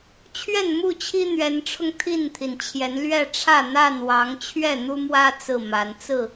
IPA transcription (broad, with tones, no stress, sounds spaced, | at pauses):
t͡ɕʰ ɥ ɛ˥˨ n m u˥˨ t͡ɕʰ i˦ n̪ ɥ ɛ˨˦ n ʈ͡ʂʰ ʊ˧ ŋ t̪ʰ i˥˨ n t̪ʰ i˩ n t͡ɕʰ j ɛ˨˦ n l ɥ ɛ˥˨ ʈ͡ʂʰ ä˥˨ n̪ a˥˨ n w ɑ˨˦ ŋ t͡ɕʰ ɥ ɛ˥˨ n̪ u˦ m w ä˦ t͡s ɹ̩˥˨ m a˨˦ n t͡s ɹ̩˥˨